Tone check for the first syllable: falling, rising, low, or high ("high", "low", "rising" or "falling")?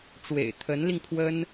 low